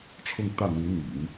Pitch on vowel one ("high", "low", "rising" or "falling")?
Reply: falling